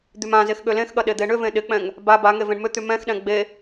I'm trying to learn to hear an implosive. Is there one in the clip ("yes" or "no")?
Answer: yes